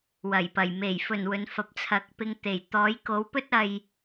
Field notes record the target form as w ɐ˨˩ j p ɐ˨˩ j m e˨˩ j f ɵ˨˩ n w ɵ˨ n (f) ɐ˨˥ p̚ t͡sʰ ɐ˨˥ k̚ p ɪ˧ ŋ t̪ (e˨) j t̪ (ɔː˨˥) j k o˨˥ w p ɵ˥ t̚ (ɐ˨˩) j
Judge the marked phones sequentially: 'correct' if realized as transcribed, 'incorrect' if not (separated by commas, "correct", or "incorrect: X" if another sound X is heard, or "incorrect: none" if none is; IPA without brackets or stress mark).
correct, incorrect: e˨˩, correct, incorrect: ɐ˧